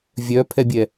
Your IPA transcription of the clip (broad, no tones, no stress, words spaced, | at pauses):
vʲœpʰɛbʲɛ